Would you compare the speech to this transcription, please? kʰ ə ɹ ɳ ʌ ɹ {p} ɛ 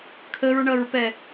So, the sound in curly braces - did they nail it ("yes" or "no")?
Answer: yes